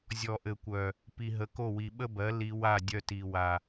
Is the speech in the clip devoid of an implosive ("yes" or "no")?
no